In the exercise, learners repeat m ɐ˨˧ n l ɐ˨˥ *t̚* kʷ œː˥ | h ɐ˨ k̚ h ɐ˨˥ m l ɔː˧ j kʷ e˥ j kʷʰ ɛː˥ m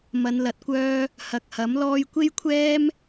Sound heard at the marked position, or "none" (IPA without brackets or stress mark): t̚